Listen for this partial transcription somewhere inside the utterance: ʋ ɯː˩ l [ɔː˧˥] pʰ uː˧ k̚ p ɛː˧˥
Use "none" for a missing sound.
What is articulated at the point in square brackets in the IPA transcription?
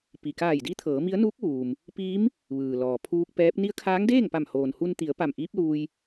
ɔː˩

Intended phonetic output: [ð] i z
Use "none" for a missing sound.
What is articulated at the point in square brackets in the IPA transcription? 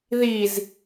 ð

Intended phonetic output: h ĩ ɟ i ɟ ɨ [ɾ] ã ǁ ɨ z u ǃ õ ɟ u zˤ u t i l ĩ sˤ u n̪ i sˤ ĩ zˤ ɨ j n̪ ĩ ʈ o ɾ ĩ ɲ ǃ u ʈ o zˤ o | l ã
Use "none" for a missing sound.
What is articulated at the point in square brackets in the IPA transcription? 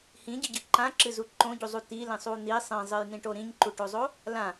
ǃ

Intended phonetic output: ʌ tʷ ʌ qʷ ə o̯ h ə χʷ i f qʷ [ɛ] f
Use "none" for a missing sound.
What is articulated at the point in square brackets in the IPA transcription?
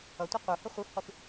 ɪ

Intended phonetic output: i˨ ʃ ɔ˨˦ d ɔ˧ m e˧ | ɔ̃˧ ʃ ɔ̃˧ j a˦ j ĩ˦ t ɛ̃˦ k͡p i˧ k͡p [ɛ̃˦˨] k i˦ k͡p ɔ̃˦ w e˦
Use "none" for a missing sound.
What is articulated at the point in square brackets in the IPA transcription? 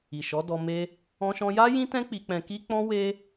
ɛ̃˧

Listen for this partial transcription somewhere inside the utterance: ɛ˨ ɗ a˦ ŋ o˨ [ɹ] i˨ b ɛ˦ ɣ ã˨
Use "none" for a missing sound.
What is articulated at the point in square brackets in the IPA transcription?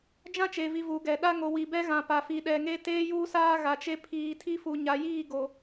w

